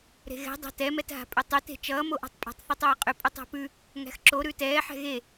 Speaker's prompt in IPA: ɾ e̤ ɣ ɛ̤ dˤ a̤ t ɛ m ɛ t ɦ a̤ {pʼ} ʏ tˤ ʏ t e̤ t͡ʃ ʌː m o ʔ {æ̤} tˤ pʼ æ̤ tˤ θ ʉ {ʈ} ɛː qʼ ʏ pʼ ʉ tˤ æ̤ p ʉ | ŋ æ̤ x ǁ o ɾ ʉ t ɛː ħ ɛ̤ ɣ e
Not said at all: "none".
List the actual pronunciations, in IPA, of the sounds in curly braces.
pʼ, a̤, tˤ

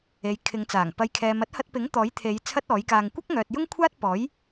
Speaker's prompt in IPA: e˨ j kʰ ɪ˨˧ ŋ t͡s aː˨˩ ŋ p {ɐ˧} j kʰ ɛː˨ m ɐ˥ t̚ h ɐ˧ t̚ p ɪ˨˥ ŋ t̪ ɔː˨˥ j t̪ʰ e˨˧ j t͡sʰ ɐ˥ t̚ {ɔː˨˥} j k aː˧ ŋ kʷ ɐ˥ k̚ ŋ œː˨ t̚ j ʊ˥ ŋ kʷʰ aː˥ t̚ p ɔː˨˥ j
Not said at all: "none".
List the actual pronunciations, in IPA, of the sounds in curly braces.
ɐ˨, ɔː˨˥

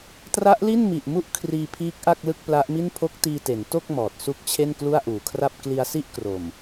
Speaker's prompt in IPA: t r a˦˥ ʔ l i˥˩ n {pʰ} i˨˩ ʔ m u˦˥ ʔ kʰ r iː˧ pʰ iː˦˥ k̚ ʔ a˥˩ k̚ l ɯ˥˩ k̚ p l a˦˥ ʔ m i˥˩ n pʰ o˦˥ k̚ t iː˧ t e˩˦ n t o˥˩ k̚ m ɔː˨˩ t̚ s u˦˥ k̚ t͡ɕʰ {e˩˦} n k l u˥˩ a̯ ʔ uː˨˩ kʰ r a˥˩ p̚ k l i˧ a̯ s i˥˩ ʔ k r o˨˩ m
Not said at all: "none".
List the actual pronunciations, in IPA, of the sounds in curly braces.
m, e˥˩

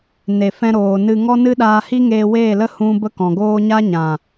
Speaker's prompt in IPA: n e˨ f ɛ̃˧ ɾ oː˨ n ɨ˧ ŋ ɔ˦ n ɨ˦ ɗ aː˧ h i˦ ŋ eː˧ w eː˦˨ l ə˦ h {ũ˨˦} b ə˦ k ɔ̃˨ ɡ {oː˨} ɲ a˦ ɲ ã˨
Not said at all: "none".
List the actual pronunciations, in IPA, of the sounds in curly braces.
ũ˦, oː˦

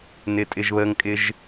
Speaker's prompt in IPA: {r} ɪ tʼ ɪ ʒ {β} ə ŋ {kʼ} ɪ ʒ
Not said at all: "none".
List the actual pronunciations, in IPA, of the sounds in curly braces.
n, β, kʼ

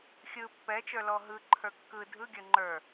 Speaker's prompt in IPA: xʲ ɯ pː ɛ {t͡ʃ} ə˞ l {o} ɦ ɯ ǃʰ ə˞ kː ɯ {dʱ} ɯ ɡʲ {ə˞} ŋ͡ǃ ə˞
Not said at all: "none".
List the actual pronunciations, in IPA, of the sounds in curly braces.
t͡ʃ, ɔ, dʱ, ə˞

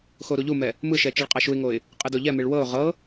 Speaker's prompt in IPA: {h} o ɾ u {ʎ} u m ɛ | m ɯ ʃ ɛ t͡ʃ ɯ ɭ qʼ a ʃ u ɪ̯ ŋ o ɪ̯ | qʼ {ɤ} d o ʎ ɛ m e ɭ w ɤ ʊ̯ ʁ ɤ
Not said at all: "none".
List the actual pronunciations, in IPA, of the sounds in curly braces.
x, ʎ, ɯ

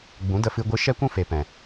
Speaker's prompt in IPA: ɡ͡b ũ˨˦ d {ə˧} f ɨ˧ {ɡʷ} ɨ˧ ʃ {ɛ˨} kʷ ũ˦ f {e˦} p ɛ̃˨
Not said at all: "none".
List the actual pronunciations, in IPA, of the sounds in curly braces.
ə˧, ɡʷ, ɛ˦, e˨

